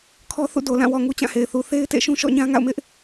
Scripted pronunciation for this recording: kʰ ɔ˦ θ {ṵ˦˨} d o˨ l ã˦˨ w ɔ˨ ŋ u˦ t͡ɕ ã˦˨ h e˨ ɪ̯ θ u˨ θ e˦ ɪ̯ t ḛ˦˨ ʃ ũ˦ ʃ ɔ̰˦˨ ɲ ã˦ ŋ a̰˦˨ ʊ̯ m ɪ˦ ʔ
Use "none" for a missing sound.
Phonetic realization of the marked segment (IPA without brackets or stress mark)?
ṵ˦˨